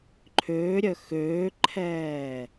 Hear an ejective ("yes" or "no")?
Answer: no